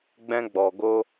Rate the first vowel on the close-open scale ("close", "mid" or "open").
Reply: mid